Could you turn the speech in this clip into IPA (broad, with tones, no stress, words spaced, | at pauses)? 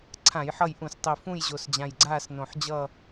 ǀʰã˧˩˧jħʌ˦˨jʔũ˧˩˧stˤi˨˩ fũ˦˨jʑo˨˩sd͡ʑã˨˩jɡ͡ǀaː˦˨s nõ˨˩ħd͡ʑʌ˦˨